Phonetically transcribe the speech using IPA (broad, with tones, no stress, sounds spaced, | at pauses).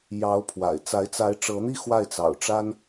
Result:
j ɑ˧˥ ʊ̯ pʰ w a̰˨˩ ɪ̯ t͡s a˧˥ ɪ̯ t͡s a˧˥ ɪ̯ ʈ͡ʂ ɤ˧˥ n̪ i˥˧ x w a˥˩ ɪ̯ t͡s ɑ̰˨˩ ʊ̯ ʈ͡ʂ a˥ n